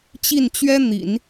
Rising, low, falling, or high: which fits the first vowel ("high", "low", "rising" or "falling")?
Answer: falling